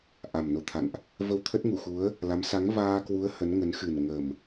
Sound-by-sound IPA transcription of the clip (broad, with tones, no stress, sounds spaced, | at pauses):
ʔ a˨˩ m n o˨˦ t̪ʰ a̰˧˨ n ʔ | v ə˧ w t̪ʰ ə˦˥ t̚ ŋ u˧˩ x u˨˦ ə̯ | l a˨˦ m s a˨˦ ŋ v aː˧ k w u˨˦ ə̯ h ə˨˦ n ŋ ə˨˦ n x ɨ˨˩ n ŋ ə˨˩ m